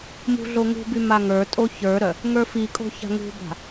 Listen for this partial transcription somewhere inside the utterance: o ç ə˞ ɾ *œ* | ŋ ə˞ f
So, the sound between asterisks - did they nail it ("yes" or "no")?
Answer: yes